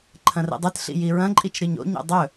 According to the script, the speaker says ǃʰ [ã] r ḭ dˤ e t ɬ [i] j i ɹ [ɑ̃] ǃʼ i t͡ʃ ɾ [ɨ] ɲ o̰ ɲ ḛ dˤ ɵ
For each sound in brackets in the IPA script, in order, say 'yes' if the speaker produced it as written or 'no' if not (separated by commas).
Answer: no, no, no, yes